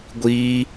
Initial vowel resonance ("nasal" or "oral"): oral